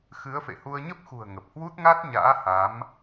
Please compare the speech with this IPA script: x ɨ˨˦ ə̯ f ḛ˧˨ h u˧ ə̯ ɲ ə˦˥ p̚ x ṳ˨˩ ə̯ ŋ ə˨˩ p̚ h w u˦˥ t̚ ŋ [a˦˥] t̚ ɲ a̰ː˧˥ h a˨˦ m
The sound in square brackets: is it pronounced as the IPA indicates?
yes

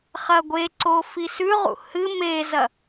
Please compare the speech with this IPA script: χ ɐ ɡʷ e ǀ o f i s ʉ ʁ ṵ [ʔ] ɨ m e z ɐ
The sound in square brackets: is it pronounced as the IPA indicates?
no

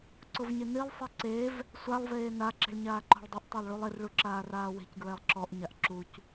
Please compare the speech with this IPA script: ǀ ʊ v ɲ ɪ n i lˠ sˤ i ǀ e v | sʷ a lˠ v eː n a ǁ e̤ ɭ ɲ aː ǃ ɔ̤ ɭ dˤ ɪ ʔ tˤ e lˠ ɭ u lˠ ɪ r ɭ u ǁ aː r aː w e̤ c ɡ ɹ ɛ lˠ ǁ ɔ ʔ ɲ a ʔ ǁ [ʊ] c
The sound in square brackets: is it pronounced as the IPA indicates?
no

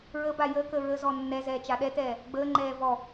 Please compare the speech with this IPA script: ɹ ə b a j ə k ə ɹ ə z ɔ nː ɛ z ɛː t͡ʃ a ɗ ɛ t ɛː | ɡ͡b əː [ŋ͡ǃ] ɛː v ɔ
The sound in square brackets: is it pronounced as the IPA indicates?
yes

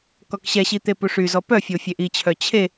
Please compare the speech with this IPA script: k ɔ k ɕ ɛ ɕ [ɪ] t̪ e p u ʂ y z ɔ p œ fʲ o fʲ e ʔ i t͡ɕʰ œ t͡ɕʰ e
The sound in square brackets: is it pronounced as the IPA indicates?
no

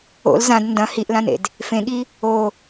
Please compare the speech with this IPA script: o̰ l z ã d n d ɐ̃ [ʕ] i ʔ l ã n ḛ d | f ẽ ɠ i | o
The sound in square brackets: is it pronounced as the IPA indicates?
no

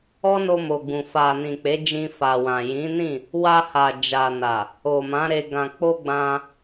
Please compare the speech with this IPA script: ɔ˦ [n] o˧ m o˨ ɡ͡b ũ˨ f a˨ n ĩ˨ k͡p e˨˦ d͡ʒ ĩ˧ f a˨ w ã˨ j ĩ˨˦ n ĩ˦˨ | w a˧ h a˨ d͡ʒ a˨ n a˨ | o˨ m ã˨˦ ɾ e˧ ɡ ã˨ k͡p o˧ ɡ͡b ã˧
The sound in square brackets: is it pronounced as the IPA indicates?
yes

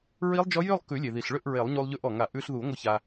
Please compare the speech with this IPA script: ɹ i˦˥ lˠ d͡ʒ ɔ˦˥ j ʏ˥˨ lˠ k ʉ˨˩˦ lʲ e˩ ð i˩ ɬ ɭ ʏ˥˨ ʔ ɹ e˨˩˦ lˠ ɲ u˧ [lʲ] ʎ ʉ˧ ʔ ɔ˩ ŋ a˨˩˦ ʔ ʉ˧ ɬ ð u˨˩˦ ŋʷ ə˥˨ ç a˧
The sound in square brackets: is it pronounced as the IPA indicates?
no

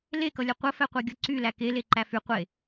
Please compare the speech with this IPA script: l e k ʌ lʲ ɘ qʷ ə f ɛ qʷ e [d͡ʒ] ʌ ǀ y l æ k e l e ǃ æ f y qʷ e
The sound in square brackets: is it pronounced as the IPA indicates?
no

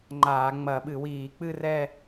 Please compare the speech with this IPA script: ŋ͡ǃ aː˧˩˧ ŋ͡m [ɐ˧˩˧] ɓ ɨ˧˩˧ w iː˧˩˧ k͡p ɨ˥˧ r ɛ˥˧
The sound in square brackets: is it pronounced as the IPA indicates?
yes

